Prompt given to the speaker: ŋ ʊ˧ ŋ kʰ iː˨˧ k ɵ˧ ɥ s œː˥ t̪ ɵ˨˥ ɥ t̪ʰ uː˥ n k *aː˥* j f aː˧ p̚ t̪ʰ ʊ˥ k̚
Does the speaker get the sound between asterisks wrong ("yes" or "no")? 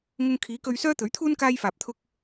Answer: no